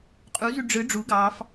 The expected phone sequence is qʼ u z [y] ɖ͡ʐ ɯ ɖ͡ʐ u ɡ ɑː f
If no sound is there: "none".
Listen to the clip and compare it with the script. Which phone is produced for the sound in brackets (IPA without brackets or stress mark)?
y